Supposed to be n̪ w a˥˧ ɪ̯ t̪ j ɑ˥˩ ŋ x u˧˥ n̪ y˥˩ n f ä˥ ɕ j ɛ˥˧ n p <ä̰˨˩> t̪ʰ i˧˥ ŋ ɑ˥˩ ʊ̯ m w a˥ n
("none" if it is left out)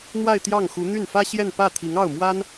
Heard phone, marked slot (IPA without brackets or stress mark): ä˥˩